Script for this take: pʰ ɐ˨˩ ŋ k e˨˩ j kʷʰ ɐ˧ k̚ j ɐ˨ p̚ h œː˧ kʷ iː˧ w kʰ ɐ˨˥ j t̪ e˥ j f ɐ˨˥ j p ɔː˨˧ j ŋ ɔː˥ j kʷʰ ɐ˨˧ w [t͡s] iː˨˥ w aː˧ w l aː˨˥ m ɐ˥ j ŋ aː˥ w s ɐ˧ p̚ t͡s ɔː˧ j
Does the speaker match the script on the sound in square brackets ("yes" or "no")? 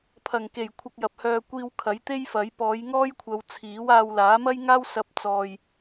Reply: no